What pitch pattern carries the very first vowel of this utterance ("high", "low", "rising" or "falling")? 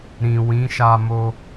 low